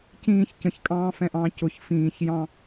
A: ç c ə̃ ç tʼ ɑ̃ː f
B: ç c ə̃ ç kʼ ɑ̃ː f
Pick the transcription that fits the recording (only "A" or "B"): B